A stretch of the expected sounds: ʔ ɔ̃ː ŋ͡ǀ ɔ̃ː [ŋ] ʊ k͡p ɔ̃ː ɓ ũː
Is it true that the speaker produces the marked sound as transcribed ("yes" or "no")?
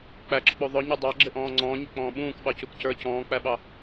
no